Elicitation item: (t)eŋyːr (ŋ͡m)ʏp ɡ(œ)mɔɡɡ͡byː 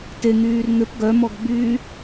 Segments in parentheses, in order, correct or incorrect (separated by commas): correct, incorrect, correct